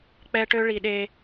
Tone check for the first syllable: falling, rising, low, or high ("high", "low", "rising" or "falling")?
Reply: high